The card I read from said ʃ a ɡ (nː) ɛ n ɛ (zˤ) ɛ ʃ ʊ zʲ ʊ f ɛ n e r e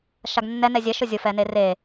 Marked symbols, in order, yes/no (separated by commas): yes, no